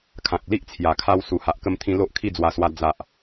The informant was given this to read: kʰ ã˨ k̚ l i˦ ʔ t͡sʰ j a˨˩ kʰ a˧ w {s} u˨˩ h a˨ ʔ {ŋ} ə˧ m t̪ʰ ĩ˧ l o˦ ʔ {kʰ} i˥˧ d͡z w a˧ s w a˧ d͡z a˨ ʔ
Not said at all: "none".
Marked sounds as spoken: s, k, kʰ

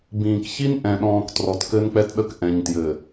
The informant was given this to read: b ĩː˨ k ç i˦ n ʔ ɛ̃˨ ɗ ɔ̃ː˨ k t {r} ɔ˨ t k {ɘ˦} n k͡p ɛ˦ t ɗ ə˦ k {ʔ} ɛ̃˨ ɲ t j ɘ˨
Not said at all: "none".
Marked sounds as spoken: r, ɘ˦, ʔ

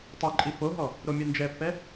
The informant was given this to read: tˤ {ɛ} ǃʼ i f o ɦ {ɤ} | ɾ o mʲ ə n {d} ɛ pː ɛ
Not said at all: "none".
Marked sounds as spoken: ɛ, ɔ, d͡ʒ

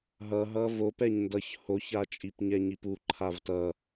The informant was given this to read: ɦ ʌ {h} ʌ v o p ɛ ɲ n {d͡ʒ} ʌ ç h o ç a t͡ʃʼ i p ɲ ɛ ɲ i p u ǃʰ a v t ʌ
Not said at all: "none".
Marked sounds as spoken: ɦ, d

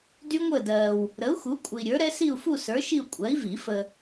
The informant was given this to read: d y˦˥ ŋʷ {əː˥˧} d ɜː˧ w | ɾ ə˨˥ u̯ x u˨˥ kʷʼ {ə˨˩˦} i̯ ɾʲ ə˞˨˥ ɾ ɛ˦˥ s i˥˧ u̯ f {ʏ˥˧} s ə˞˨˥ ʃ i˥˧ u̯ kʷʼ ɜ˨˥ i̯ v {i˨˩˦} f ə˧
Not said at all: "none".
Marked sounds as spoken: əː˥˧, ə˧, u˥˧, i˨˩˦

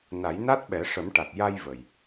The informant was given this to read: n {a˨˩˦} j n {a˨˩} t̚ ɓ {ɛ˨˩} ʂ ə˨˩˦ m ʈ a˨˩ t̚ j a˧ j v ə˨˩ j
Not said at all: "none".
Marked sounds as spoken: a˨˩˦, a˦˥, ɛ˨˩˦

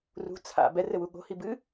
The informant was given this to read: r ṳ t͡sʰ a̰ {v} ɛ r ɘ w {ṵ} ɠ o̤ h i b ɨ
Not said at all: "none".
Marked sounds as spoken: b, u

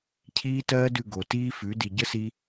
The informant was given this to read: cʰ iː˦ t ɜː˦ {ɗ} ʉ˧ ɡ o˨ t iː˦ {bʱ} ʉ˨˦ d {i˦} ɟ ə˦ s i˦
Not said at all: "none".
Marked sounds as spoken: d, f, i˨

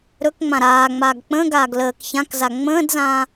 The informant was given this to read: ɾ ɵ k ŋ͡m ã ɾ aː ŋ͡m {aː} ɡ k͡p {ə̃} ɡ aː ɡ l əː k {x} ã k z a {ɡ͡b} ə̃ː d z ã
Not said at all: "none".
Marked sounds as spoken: aː, ə̃, ç, ŋ͡m

